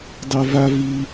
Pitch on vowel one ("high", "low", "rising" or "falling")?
low